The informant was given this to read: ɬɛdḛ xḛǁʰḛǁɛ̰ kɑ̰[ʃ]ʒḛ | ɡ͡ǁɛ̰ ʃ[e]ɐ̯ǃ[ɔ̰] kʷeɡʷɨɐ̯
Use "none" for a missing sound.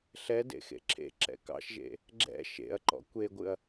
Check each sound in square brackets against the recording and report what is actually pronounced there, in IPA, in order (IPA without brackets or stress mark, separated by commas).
ʃ, ḛ, ɔ̰